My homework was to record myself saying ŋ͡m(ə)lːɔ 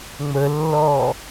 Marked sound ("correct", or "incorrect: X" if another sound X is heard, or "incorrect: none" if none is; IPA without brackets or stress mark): correct